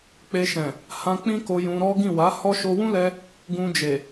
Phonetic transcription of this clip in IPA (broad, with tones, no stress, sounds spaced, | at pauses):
k͡p e˧ ʃ ɛ̃˨ | h ã˧ k͡p ĩ˦ k o˧ j ũ˧ ɾ ɔ˦ ɡ ĩ˦˨ w a˨˦ h ɔ˦ ʃ o˧ w ũ˦ l ɛ˧ | ɡ ũ˧ d͡ʒ e˨